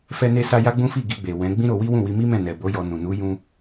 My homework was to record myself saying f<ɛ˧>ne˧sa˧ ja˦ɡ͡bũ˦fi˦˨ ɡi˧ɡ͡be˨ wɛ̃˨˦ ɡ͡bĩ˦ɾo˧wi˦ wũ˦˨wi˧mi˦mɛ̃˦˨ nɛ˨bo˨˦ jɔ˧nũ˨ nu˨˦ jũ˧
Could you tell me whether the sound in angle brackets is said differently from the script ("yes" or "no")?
no